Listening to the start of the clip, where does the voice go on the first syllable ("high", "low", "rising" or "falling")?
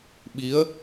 rising